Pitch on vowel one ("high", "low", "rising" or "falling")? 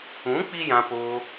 rising